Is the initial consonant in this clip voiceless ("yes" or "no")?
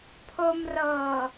yes